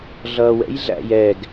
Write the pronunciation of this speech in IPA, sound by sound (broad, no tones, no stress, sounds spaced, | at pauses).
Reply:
ɮ ʌː w ɛ̰ j ɮ æ̰ j ɛ ɡ